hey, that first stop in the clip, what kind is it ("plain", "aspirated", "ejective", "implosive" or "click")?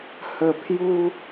aspirated